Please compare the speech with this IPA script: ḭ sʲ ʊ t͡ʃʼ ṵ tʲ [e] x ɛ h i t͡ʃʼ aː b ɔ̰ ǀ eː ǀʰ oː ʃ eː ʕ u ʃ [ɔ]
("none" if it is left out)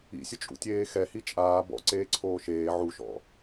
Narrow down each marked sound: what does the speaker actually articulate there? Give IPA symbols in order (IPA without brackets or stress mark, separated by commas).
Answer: eː, ɔ̰